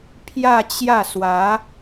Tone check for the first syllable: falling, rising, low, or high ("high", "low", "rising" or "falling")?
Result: falling